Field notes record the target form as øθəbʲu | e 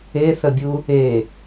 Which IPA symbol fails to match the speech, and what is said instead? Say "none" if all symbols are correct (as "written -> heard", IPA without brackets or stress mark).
ø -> e